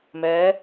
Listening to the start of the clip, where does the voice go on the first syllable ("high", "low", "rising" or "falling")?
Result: rising